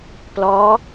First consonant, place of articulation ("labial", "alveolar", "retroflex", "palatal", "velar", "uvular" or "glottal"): labial